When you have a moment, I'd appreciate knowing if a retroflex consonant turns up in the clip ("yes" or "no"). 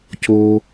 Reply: no